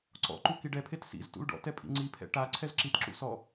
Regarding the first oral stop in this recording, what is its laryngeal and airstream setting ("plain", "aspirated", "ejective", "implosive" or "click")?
click